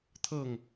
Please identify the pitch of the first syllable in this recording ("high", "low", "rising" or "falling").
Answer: falling